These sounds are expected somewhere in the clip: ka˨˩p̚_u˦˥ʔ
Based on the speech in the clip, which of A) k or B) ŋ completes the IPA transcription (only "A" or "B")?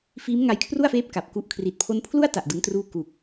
A